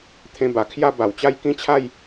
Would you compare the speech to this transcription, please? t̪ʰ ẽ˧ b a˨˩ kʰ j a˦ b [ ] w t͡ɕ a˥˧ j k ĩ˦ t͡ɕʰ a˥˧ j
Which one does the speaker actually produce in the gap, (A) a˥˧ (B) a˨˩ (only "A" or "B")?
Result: B